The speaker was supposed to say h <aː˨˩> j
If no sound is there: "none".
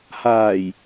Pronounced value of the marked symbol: aː˨˩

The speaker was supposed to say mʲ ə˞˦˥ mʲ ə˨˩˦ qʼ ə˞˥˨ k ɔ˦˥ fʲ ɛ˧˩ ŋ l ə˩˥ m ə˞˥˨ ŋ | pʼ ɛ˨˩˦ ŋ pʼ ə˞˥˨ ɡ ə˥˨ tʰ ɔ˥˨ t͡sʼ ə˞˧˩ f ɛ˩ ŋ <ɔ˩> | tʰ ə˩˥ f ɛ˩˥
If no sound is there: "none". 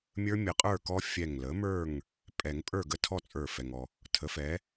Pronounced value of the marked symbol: ɔ˩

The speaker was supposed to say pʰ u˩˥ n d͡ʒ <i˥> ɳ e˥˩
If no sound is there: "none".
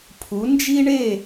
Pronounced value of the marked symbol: i˥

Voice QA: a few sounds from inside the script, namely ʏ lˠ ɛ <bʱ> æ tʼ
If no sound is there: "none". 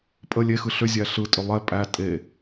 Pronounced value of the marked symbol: pʼ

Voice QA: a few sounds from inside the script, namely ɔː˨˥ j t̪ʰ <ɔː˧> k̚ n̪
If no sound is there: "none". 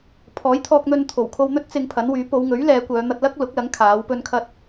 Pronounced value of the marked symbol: ɔː˧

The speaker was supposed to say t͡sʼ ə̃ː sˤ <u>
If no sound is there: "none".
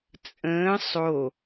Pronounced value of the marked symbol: o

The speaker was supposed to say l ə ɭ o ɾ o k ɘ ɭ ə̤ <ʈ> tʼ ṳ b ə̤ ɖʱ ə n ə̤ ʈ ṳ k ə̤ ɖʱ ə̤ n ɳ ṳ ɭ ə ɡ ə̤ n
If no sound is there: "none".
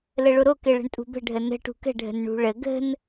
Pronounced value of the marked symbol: ɳ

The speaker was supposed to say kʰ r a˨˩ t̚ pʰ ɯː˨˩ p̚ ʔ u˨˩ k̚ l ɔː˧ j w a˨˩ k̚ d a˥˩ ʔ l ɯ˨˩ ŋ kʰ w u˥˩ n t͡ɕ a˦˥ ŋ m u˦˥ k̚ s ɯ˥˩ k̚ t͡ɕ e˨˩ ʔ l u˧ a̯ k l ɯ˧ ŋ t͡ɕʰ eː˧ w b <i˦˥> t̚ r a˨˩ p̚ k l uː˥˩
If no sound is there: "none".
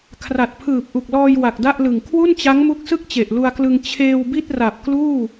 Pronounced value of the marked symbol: i˥˩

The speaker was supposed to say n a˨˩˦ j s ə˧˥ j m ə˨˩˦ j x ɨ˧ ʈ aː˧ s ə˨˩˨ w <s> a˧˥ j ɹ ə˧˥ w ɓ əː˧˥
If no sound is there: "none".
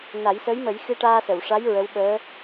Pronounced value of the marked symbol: ʂ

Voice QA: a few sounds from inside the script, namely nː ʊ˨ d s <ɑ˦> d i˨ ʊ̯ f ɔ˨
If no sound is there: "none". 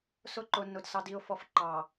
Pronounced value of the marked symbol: ɑ˨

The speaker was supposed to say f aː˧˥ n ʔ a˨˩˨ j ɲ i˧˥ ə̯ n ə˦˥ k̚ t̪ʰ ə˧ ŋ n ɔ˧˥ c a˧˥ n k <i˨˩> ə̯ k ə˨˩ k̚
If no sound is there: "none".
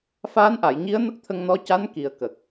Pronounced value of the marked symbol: i˨˩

